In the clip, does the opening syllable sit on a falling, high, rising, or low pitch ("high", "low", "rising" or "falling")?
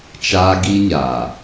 high